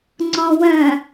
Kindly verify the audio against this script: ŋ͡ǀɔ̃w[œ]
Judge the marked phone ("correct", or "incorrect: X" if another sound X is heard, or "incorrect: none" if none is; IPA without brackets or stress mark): incorrect: œ̃